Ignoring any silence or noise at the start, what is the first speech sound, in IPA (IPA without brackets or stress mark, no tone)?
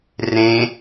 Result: r